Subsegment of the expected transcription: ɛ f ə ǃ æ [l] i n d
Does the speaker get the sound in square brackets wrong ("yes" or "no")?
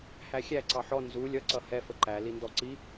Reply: no